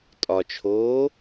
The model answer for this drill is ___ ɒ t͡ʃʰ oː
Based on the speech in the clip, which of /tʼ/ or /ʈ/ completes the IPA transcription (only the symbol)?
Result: tʼ